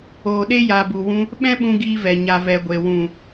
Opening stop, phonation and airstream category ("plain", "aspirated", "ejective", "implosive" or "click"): implosive